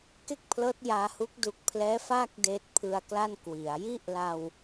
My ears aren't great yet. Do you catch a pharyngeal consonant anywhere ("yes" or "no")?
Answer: no